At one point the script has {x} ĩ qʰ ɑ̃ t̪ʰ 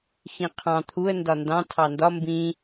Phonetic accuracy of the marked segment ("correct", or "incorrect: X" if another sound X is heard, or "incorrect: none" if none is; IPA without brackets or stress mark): correct